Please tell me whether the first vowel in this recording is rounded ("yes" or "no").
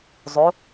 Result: yes